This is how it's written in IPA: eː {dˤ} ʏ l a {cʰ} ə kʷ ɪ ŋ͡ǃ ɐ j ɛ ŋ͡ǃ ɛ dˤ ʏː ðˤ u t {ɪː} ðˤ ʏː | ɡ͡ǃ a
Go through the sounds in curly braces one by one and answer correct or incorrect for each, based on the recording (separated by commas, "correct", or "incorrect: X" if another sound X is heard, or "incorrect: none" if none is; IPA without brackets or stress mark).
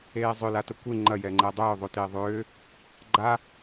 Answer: incorrect: zˤ, incorrect: t, correct